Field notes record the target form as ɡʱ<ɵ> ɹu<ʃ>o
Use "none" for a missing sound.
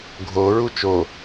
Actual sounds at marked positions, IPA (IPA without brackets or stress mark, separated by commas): o, t͡ʃ